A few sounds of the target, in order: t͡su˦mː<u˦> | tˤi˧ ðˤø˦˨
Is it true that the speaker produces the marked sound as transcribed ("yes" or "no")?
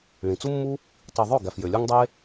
yes